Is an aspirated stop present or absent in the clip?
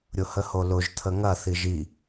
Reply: present